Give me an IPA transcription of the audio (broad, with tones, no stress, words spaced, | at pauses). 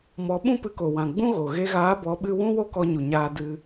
mɔ˨˦ɓũ˦pɨ˧ ko˨wã˨ ɡ͡bũ˦ɣo˨ ɣe˧ɣaː˨˦bɔ˨˦ ɓɨ˦ wũ˦wo˦kɔ˧ ɲu˨ɲaː˧ dɨ˧